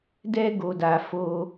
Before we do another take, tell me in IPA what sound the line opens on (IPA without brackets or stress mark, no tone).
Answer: d